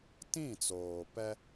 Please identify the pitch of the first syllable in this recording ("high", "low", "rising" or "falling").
falling